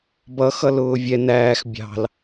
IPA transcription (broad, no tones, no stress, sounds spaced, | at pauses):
b ʌ x ʌ l ʊː vʲ ɛ n æː x bʲ ɑ̤ l